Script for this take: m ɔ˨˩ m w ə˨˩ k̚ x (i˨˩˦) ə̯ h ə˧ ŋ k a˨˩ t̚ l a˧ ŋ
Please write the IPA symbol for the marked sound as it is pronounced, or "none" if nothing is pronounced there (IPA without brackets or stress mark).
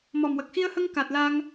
i˧